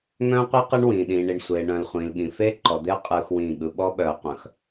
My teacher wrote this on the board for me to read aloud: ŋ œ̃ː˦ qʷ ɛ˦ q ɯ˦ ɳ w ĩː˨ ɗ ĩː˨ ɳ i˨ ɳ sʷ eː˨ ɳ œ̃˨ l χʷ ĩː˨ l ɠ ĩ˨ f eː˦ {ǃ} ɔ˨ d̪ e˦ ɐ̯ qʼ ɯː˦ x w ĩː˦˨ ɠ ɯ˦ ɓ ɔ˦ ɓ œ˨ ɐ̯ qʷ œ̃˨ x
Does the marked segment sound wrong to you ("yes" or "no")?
no